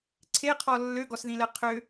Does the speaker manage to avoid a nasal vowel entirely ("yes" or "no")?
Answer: no